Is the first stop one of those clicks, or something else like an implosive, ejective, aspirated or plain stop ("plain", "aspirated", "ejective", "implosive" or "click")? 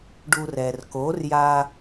plain